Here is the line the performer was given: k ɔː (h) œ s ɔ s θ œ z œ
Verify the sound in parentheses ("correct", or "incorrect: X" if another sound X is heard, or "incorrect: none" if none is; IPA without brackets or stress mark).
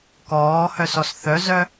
correct